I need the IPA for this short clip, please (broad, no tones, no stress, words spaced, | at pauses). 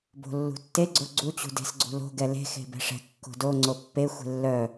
bo̤lːṳtːe ɡ͡ǀoɡ͡ǀu t͡ɕṳde̤sɡ͡ǀṳlo̤ ɡɛle̤ xe̤bɛ̤ʂɛ̤ kːo̤do ŋ͡ǀopːe xʷe̤lːœ